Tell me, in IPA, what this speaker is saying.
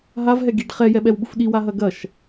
ɦ a v ɦ ɛ ɡ i ɖ χ ɛ j ɛ ɓ ɛ w ɓ u f ɗ i w a ɦ ɐ ɡ ɐ ʃ

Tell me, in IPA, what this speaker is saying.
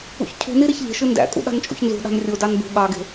ṵ ç cʰ ṳ n i ɾ e ç ʎ e̤ ʃ ɯ n d æ̰ kʼ ṵ ɗ ɑ̤ n t͡ʃʼ ṵ ç n z ṳ ɗ ɑ̤ n rʲ o d ɑ n b ṳ ɠ ɑ ɡ e̤

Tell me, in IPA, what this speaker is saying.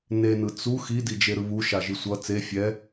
n e n ɯ t͡s u x i d i d͡ʒ e ɾ ɯ β u ʃ a ʒ i sʷ ʌ t͡s e fʲ ɛ

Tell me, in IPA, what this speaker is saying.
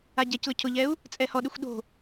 a ɟ ɛ c l ʊ cʰ ʊ ʎ ɛ u̯ | t͡sʼ ɛ h ɔ ɗ ɪ xʷ ɗ o̤

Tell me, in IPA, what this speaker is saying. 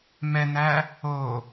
m ɛ n̪ æ | o

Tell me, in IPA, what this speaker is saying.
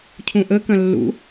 cʰ ũ ʔ ə k ɐ̃ lː ṵ

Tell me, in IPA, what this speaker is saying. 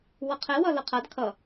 w ʌ qʰ ɛ w ʌ l ʌ qʰ a d kʰ ʌ

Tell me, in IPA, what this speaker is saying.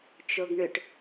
t͡ʃ o ɡ ɳ ʏ ʈ

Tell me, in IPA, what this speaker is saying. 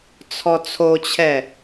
t͡sʰ ɔ t͡sʰ o t͡ɕʰ ɛ

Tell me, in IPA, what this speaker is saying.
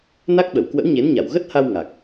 n a˦˥ k̚ ɓ ə˧˩ w k w ə̰˧˥ w ɲ e˨˦ n ɲ a˧˩ w ɣ ə˦˥ t̚ h a˧ w ŋ a˨˩ k̚

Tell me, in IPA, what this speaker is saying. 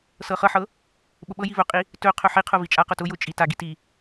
s ɤ χ ɤ ħ ɤ | ɓ ʊ ɓ ɤ j i v ɵ qʼ i | t ɵ qʰ ɵ ħ i qʰ ʊ v i t͡ʃʼ a q ʊ t ʊ j ʊ t͡ʃʼ i t a ɡ i t i

